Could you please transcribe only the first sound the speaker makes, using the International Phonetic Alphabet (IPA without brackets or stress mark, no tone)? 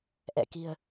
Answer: ʔ